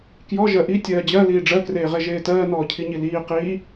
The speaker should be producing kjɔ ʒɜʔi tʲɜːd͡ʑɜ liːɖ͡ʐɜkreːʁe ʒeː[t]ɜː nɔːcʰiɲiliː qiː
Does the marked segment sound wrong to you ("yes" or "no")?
no